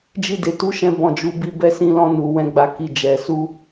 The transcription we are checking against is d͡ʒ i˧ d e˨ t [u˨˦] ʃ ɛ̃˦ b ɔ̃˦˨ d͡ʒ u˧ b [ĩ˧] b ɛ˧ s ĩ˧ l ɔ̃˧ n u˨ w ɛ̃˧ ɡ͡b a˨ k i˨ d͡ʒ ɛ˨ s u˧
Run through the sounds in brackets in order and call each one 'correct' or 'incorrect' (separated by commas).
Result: correct, incorrect